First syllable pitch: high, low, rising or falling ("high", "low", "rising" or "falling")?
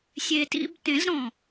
low